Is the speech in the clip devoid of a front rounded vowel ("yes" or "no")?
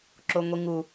yes